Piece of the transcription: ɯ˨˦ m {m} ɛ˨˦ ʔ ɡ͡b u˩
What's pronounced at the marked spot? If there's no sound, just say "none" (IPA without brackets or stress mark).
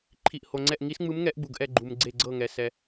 ŋ